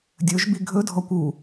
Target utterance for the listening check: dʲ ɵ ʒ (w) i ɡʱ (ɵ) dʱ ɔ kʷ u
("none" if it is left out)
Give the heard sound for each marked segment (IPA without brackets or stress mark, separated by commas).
b, ɵ